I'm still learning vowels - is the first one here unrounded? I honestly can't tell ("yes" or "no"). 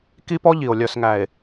yes